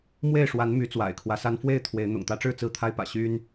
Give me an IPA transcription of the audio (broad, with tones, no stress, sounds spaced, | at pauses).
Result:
m w e˥˨ ɪ̯ ʂ w a˨˦ n m y˨˦ t͡s w a̰˨˩ ɪ̯ kʰ w ä˦ s a˦ n f w e˥˨ ɪ̯ t̪ʰ w e˨˦ ɪ̯ n̪ ʊ̰˨˩ ŋ t̪ ä˨˦ ʈ͡ʂ ɻ̩˥˨ t͡s ɹ̩˦ t̪ʰ a˦ ɪ̯ p ä̰˨˩ ɕ y˦ n